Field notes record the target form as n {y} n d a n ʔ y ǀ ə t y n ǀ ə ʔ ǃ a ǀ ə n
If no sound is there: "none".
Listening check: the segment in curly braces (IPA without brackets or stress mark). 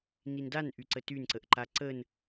i